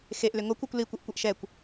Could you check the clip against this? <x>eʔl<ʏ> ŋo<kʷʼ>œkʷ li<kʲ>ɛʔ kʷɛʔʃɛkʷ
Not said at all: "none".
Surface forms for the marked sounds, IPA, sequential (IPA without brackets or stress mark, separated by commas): x, ʏ, kʷ, kʷ